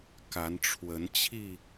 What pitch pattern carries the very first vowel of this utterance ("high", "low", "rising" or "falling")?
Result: rising